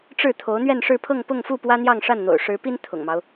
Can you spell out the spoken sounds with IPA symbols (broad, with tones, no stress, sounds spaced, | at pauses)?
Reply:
ʈ͡ʂ ɻ̩˥˩ t̪ʰ o˧˥ ʊ̯ n̪ ɥ ɛ˥˧ n ʂ ɻ̩˥˧ pʰ ɤ˥˧ ŋ p ʊ˥˧ ŋ f u˥˩ p w ä˥ n̪ j ɑ˥˧ ŋ ʂ a˥˩ n n̪ o̰˨˩ ʊ̯ ʂ ɻ̩˧˥ p i˥ n t̪ʰ ʊ̰˨˩ ŋ m ɑ˦ ʊ̯